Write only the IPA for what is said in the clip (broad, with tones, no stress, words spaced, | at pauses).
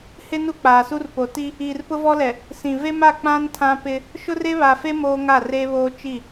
hɪ˦ nu˦k͡paː˨su˦rpo˨ ti˦ | iː˨rpʊ˦vɔ˦lɛ˨ | sĩ˨ve˦ma˦˨ k͡pã˦n tʰã˦pɪ˦ | ʃʊ˦re˦βa˨fe˦ moː˦ŋa˦˨reː˦βoː˦ t͡ʃi˦˨